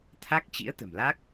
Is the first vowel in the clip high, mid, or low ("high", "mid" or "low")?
low